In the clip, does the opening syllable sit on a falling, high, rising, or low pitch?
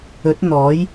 rising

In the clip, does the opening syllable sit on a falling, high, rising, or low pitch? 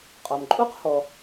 low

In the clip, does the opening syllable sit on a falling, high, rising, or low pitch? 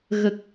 low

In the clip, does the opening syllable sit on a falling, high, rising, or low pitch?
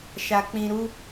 low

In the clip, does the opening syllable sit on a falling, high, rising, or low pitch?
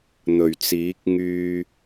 low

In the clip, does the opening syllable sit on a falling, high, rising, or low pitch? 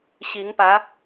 rising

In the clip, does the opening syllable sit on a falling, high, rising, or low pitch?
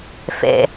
low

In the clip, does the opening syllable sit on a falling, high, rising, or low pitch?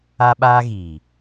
high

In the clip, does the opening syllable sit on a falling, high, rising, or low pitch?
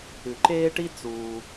low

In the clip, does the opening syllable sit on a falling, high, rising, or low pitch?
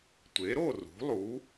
rising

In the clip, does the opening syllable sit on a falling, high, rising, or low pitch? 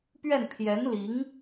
falling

